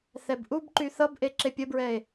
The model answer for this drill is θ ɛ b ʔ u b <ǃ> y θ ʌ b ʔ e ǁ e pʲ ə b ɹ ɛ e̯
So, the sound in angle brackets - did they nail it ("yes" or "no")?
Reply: yes